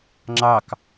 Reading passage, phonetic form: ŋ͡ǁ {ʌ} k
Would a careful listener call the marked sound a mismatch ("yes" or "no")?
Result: yes